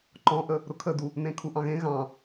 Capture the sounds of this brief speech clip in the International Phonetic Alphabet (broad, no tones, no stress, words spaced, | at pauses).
ǃɔ̃ʔə | ɾʊkʰədu | nẽkʰuʔɑ̃ɣẽ ɣɑ̃